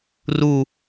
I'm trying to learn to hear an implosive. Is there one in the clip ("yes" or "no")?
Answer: no